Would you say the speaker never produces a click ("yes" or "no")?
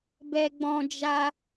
yes